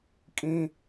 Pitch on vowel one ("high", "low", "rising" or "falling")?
high